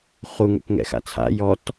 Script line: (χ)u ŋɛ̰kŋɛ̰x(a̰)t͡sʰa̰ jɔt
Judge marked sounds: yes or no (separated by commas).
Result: yes, yes